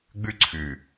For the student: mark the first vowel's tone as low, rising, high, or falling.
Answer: high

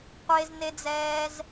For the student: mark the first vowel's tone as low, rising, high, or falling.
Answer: high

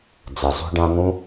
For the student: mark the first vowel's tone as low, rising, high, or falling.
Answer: low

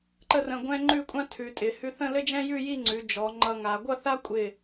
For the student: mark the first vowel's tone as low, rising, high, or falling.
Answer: falling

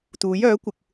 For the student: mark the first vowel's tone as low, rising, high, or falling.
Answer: rising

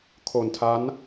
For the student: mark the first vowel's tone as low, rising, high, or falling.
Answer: low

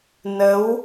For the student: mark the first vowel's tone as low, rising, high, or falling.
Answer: rising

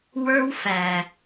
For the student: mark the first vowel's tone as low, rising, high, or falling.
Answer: high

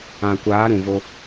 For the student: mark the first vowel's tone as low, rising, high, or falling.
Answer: low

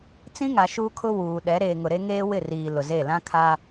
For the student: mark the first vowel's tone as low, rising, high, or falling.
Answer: high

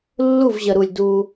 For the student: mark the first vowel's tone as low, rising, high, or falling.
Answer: falling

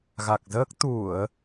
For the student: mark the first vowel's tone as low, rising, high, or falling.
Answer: low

